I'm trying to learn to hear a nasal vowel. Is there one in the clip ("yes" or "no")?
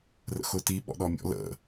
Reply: no